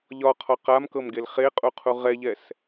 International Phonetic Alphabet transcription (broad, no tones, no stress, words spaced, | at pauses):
ʎɒqʰɒ qamkɤmɡel χeqʼuqʰu ʁɛʎɛs